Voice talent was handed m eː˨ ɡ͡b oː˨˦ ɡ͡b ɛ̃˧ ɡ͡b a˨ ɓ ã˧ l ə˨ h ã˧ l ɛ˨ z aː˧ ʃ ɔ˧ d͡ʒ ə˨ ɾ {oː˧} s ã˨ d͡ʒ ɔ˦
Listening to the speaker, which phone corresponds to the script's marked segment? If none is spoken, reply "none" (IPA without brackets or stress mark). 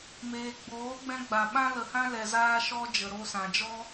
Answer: o˧